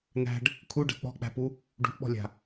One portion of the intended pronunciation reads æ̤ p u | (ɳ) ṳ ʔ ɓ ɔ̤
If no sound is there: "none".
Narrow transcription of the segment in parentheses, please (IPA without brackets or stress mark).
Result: ɖ